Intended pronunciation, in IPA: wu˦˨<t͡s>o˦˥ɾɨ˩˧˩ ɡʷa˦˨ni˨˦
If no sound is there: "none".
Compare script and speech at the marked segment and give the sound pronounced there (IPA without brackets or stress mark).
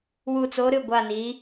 t͡s